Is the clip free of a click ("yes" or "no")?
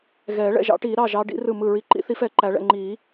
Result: no